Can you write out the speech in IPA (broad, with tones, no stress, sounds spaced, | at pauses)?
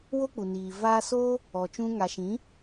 w o˦ k͡p u˨ n iː˨ v aː˧ s oː˦ | ɔ˨ t͡ʃ ũ˧ ŋ a˨ ʃ ĩ˨˦